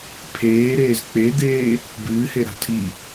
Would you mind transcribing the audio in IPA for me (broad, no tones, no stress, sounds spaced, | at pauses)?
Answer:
pʰ eː ɾ eː z k͡p e d̪ eː | b ɨː h e ɾ a̤ tʰ i